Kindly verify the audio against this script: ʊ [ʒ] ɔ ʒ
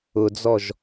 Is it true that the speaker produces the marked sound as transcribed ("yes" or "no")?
no